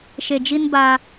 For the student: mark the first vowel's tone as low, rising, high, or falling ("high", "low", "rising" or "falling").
low